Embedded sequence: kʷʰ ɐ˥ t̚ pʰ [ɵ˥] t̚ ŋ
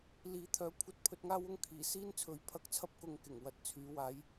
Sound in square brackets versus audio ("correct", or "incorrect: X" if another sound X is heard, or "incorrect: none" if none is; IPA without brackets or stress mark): incorrect: ɵ˧